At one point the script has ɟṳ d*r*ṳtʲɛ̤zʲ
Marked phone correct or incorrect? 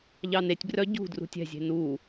correct